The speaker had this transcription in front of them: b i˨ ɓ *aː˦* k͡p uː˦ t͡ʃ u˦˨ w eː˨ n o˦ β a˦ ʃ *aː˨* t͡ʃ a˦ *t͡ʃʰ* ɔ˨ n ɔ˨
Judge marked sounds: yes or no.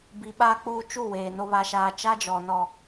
yes, no, no

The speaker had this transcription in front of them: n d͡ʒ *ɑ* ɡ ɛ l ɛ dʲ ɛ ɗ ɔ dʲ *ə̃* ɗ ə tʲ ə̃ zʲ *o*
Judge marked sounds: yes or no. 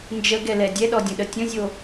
no, yes, yes

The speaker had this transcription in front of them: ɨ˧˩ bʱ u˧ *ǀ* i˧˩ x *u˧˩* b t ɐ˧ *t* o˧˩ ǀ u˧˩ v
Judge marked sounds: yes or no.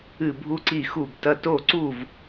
yes, yes, yes

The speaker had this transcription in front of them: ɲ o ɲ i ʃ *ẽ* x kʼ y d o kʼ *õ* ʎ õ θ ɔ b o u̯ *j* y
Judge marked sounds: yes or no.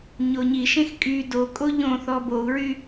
yes, no, no

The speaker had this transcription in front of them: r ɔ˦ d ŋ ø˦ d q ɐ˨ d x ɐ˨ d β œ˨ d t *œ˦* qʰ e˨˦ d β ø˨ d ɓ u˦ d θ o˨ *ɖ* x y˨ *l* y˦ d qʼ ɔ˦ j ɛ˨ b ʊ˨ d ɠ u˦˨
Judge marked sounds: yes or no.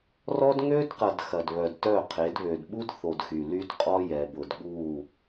no, no, yes

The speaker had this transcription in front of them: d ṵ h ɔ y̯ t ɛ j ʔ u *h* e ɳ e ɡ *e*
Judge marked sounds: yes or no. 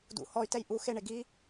no, no

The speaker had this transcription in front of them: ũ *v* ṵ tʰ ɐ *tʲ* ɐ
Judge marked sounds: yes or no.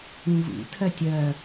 yes, yes

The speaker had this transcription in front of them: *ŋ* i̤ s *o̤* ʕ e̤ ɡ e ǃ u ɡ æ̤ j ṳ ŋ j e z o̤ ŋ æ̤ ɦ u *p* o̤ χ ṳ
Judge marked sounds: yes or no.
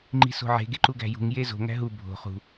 no, yes, no

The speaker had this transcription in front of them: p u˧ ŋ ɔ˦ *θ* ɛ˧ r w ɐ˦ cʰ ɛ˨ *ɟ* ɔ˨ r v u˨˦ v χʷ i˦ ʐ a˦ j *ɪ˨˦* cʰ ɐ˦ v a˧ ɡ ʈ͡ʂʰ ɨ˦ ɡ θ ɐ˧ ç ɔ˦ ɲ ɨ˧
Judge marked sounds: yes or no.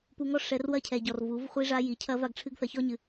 no, yes, no

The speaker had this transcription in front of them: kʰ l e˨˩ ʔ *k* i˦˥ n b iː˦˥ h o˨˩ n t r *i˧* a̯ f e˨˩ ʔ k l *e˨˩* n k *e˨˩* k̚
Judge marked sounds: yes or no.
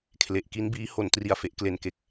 yes, no, yes, yes

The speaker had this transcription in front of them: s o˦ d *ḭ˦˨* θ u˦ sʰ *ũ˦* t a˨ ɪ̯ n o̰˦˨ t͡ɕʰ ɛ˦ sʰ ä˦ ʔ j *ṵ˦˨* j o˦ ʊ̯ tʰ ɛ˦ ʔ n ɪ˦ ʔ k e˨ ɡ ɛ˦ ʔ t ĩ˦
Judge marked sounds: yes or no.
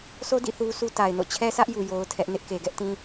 yes, no, no

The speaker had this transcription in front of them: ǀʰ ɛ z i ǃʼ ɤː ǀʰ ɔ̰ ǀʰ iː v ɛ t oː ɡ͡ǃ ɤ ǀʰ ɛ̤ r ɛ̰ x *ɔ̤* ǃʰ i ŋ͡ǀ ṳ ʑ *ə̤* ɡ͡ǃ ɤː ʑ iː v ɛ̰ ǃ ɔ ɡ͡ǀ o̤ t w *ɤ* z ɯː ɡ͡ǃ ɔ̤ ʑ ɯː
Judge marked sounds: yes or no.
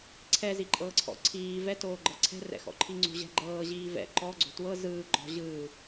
no, no, yes

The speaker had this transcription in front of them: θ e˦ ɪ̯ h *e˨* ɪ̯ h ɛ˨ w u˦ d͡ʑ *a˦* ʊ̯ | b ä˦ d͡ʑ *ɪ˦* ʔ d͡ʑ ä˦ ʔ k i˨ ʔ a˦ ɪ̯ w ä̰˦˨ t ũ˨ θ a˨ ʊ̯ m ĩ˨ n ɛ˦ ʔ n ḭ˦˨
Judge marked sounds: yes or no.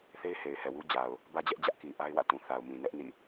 yes, no, no

